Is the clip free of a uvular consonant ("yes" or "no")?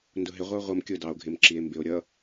no